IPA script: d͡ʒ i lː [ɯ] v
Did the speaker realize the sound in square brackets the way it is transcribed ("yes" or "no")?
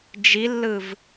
yes